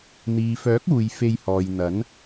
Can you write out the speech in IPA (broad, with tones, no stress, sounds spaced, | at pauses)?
n̪ iː˨ f œː˨˥ k̚ uː˨ j f e˧ j h ɔː˨ j n̪ ɐ˨˥ n